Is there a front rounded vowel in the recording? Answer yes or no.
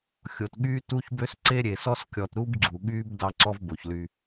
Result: yes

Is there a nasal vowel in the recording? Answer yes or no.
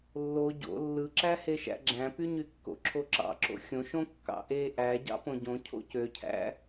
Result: yes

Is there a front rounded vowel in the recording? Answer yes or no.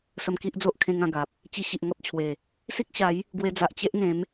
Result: no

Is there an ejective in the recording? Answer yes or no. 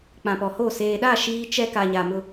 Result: no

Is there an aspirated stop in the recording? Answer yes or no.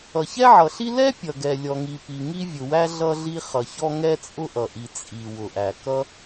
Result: no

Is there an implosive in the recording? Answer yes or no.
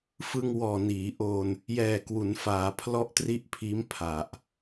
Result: no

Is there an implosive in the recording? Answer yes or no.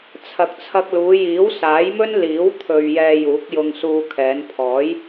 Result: no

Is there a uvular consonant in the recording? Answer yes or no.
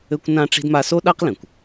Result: yes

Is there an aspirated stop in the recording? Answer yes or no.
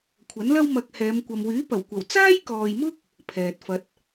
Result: yes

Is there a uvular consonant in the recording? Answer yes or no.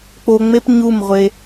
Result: yes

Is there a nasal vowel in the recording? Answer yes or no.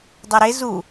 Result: no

